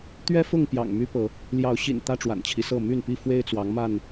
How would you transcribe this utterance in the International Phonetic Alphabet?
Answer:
t̪ɥɛ˦fʊ˥˨ŋ pjɑ̰˨˩ŋmy˦ pɤ˨˦ | ljɑ˨˦ʊ̯ɕḭ˨˩n t̪ä˦ʈ͡ʂwa̰˨˩nt͡ɕʰi˦sɤ˥˨ my˥˨npi˥˨ fwe˦ɪ̯t͡swɑ˨˦ŋma˥˨n

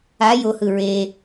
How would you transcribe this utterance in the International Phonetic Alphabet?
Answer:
a johɯ ɹe

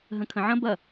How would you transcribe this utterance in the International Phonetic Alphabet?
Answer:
ɦə̃kʰə̃ʕɐ̃ bɐ

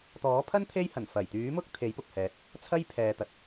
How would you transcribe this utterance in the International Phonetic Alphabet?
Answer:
t̪ɔː˨˥pʰɐ˥n t̪ʰe˥jhɐ˨˩n fɐ˨˩jt̪yː˨˥mʊ˥k̚ t̪ʰe˨˥jpʊ˨k̚hɛː˨t̚ | t͡sʰɐ˥jpʰɛː˨t̪ɐ˨t̚

